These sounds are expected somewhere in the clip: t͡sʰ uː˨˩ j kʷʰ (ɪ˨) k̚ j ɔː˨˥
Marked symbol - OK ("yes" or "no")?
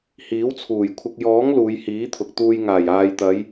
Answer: yes